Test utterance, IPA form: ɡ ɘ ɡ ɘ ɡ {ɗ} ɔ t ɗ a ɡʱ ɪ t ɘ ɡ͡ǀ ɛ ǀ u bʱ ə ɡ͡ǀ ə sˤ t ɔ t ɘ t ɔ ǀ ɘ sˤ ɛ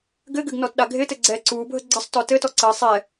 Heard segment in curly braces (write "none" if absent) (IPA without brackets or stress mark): n